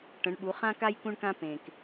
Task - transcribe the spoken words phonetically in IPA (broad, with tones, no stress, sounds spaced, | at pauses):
ʈ ə̃˩˧ ɳ ɓ u˩˧ χ ã˧ k a˧ j k ũ˧ ɳ k ã˧ p ẽ˩ k